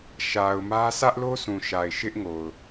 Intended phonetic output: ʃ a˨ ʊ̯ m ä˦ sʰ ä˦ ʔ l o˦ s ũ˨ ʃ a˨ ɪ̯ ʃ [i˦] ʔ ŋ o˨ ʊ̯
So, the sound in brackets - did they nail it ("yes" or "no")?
no